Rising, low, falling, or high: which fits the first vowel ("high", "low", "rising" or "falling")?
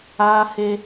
high